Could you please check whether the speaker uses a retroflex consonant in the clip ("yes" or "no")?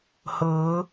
no